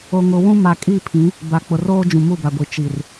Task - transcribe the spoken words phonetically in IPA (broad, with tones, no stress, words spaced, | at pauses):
o˨ŋʊ˨ wũ˦ ma˨kʼi˦˨pʰĩ˨˦ | ba˨k͡pʊ˨roː˦ d͡ʒũ˨mu˦˨ba˨ɡʷi˨ t͡ʃi˨r